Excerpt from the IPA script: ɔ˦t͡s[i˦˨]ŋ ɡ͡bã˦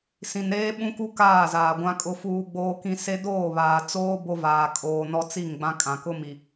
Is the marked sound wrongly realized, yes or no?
no